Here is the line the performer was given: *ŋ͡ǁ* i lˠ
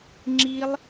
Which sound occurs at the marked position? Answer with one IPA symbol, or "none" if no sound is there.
ŋ͡ǁ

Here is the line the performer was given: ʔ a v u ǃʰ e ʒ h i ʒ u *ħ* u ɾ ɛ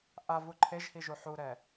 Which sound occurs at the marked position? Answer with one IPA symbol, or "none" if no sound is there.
ħ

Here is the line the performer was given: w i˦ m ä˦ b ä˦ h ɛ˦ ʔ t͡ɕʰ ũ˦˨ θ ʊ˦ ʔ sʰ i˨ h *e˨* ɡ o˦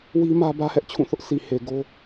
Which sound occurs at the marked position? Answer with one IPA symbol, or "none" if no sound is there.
e˨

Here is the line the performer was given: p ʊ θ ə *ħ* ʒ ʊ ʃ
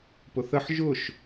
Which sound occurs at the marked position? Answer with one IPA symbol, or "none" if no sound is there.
ħ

